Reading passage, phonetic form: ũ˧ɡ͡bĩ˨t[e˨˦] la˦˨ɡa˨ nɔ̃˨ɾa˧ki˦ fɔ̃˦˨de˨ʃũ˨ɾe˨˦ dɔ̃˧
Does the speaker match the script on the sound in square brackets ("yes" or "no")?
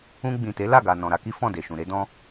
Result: yes